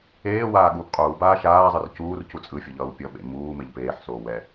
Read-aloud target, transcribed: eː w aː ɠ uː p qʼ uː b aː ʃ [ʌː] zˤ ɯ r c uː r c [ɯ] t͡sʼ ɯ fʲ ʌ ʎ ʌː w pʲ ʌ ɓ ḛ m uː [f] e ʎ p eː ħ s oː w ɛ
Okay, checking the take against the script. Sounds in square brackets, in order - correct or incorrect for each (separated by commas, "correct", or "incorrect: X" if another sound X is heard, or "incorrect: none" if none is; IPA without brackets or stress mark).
incorrect: aː, incorrect: u, incorrect: m